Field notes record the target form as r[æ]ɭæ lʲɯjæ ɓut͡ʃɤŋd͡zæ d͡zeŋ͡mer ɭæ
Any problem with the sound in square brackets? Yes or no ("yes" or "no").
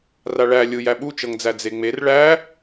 yes